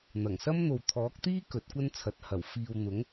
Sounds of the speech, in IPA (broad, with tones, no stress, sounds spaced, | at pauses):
n̪ ɐ˨˩ ŋ s ɐ˥ m n̪ o˨ w t̪ʰ ɔː˨˥ k̚ t̪ iː˥ k ɵ˨˥ t̚ kʷ ɐ˥ n t͡sʰ ɐ˨ t̚ h ɐ˨˩ w f iː˨ w n̪ ʊ˨˥ ŋ